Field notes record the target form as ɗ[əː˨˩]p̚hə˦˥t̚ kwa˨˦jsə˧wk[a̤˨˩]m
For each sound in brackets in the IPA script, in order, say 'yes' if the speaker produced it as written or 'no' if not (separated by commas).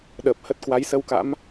yes, no